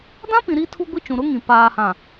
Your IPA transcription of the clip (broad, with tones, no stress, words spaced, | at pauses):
dã˦pĩ˨ ɾi˦tʰu˦ɡʷi˦t͡ʃũ˨ ɾʊ˦ŋĩ˨ paː˨hã˨